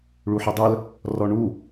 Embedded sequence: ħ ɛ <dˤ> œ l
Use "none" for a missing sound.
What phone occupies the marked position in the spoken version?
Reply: dˤ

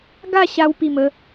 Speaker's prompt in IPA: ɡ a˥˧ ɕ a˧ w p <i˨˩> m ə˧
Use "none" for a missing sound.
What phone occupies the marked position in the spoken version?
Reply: i˨˩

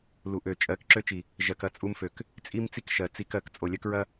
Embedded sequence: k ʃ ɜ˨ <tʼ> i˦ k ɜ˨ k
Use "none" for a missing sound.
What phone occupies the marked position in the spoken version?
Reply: t͡s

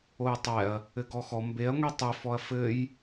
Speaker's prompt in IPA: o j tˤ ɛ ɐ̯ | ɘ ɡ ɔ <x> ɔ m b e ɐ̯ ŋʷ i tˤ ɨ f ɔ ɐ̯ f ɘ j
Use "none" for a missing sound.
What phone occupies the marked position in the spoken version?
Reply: x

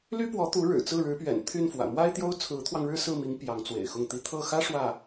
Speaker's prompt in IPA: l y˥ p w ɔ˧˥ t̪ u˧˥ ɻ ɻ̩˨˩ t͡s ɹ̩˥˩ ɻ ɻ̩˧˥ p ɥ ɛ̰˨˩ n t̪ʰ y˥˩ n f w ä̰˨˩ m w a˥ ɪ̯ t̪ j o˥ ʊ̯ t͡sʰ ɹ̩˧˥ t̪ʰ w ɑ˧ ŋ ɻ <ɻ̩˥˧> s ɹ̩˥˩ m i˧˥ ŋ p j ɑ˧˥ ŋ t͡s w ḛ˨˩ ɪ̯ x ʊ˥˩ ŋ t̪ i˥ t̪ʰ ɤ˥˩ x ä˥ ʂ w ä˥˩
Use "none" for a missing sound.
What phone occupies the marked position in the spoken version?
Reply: ɻ̩˥˧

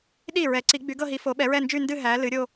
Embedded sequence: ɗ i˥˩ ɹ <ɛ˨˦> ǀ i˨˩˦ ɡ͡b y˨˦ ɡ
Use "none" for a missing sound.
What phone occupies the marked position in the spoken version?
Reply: ɛ˨˩˦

